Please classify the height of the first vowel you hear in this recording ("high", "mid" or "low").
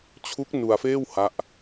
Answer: high